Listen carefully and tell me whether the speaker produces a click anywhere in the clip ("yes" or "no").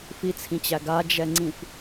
yes